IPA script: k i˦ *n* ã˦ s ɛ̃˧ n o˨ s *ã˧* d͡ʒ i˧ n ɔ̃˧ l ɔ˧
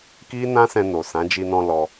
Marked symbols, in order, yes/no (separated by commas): yes, no